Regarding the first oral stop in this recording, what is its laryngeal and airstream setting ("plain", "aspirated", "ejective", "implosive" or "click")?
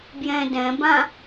plain